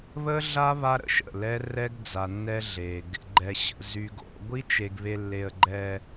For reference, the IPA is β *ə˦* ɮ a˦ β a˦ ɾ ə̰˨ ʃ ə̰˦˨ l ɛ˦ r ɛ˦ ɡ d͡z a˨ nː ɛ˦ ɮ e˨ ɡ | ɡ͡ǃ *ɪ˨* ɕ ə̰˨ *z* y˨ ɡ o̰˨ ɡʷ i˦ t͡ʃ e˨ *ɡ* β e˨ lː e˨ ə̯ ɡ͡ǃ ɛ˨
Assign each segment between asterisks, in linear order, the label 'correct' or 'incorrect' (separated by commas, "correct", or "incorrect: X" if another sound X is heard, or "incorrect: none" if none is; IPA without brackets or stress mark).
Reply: correct, incorrect: ɛ˨, correct, correct